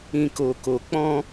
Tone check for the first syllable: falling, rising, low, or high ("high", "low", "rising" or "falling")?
low